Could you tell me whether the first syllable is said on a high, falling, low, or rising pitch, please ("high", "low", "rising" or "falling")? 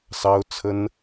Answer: high